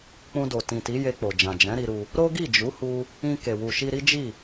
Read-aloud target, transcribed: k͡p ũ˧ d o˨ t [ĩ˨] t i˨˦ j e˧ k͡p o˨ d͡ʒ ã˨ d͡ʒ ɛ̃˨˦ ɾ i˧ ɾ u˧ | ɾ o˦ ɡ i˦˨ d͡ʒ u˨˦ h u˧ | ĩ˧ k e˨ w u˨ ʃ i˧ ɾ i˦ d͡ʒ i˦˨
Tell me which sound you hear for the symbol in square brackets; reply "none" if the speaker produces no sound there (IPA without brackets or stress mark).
ĩ˨